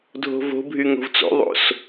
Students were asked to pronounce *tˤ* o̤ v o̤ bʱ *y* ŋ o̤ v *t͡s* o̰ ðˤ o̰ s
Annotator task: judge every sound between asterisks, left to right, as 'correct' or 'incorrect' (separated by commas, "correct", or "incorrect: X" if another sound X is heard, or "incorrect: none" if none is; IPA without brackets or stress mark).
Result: incorrect: dʱ, correct, correct